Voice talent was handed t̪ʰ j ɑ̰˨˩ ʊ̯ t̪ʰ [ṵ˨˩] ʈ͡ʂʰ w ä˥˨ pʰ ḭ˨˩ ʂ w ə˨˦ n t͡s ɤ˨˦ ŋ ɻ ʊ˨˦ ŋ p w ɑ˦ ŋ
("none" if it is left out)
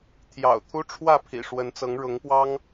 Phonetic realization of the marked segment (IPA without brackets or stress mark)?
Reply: u˦